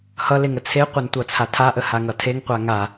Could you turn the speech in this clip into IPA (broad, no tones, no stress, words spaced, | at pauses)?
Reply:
hʌleŋə t͡sʰeqʷantʷʌt͡sʰa tʰaʔəhaŋʌ tʰeŋqʷa ŋa